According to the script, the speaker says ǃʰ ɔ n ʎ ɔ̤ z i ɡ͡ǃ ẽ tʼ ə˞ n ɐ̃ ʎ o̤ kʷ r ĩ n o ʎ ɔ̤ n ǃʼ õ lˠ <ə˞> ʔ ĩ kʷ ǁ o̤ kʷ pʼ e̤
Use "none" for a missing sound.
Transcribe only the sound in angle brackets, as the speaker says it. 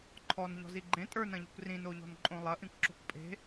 ɐ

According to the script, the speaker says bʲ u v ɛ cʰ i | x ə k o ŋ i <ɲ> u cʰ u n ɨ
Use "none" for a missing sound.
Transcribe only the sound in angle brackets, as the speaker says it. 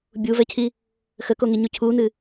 ɲ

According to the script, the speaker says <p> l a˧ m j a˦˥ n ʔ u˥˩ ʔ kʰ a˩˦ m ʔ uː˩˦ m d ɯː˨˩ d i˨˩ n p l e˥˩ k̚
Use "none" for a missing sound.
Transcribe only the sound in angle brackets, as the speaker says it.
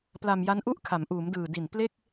p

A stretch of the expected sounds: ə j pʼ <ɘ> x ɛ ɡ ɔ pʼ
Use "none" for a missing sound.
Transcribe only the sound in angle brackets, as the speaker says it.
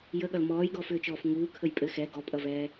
ɘ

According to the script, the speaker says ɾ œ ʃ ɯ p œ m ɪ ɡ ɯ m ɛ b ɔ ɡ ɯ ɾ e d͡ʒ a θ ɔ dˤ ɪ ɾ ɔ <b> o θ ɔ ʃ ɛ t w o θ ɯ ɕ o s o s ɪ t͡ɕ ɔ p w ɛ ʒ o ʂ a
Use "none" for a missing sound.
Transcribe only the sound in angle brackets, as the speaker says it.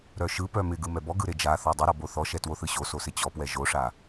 b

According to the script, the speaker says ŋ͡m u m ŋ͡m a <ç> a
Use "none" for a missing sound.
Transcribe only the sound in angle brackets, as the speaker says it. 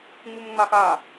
x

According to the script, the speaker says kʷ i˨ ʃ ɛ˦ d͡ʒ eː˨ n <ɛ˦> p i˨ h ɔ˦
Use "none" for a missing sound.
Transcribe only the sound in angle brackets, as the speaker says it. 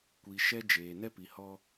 ɛ˦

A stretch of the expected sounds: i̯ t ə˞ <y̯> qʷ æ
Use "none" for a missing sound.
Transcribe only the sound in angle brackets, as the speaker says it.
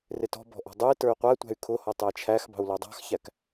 y̯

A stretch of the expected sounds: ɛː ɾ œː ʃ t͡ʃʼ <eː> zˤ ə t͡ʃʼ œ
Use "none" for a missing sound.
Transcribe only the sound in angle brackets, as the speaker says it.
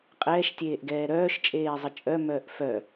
eː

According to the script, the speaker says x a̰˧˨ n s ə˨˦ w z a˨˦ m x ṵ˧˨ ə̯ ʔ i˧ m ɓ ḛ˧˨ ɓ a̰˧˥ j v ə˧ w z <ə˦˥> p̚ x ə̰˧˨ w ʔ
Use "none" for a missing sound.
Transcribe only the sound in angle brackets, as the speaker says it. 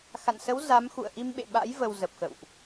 ə˨˩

